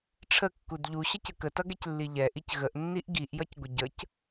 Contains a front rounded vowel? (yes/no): no